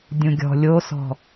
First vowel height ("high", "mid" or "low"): high